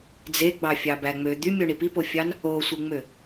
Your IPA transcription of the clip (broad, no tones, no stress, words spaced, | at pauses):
d͡zeɡ͡bɑfʲɑbæ ŋ͡mø d̪ymʲoɳi pipofʲɑn | osʷɯŋ͡mø